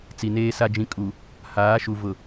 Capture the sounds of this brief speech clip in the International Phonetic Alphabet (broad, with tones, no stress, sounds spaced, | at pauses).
t͡s i˨ n eː˦ s a˦ d͡ʒ ĩ˦ kʼ u˨ | h aː˨˦ ʃ u˨ v ʊ˨